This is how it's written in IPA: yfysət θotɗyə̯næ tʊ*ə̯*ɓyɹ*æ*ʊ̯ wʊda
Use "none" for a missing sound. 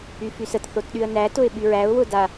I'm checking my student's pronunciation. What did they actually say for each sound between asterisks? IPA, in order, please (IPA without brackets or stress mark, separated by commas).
ɪ̯, æ